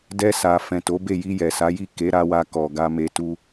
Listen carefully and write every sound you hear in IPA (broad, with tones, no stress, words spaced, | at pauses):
dɛ˧sa˨ fɛ̃˨to˨˦be˦˨ ji˧jɛ˨sa˨˦ji˦˨ ke˨˦ɾa˧wa˧ kɔ˨ɡa˧me˧tu˦